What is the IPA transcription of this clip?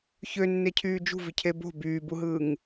çønːecʰyː d͡ʒṳvicʰe bo̤ byːbuɦɯːŋ

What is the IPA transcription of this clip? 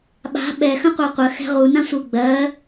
ɓa̤ ɓɛ xə̃qʷɜqʷə xɛ̤ʁu nãsʷɯ ɡ͡bɜ

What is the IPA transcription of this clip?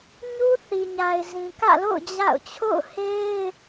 ɲu˦θi˨ɲa˨ɪ̯ zĩ˨kä̰˦˨lo̰˦˨ʊ̯ d͡ʑa̰˦˨ʊ̯ t͡ɕʰo̰˦˨ʊ̯he˦ɪ̯

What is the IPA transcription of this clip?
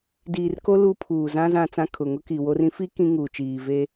diː˨rko˦ lu˦pʰuː˨zã˦ zã˨ t͡sã˦kʰʊ˨ ŋʊ˦ki˨wo˦r ĩ˦fi˦ kĩ˦ŋuː˨t͡ʃiː˨ve˦

